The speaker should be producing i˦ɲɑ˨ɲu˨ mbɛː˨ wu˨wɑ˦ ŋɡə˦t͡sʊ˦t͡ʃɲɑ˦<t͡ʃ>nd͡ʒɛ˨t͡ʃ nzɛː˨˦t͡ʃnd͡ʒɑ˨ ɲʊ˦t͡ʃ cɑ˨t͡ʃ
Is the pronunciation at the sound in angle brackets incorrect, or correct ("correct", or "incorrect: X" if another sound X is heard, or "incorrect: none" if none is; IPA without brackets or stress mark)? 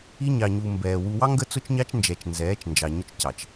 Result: correct